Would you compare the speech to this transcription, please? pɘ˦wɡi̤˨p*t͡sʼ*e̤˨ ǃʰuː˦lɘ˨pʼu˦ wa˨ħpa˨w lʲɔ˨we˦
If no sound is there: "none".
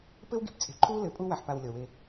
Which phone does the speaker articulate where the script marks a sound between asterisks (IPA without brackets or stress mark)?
t͡sʼ